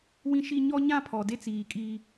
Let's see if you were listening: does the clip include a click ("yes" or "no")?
no